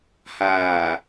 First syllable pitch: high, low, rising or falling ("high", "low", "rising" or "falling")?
low